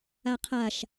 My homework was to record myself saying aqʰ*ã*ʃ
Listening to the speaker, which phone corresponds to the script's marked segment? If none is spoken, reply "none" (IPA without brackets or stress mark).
a